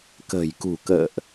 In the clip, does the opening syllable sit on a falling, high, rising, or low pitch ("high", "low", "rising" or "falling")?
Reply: low